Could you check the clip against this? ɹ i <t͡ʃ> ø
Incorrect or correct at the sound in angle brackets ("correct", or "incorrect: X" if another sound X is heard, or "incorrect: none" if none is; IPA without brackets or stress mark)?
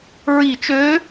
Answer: correct